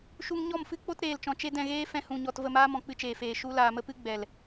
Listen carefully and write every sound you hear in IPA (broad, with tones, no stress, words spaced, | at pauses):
ʃu˧ŋɲɔ˦˨mfɨ˦k͡po˦t ɾeː˧lt͡ʃɔ̃˧ t͡ʃe˦ dɛ̃˧ɣeː˦ fɛ̃˧hũ˨ɲɔ˨t və˦˨maː˦mɔ̃˨k͡pɨ˧ t͡ʃeː˨feː˨ ʃu˦ laː˨mə˦pɨ˦ ɡ͡bɛ˨l